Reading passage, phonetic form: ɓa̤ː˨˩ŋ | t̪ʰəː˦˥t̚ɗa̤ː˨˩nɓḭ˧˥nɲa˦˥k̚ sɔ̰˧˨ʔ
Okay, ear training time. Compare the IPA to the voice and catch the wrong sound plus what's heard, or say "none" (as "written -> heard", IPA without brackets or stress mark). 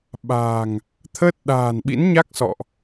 none